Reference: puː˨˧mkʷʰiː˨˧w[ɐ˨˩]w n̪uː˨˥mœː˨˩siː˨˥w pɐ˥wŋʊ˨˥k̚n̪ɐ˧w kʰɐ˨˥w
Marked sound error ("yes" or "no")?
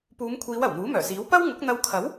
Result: no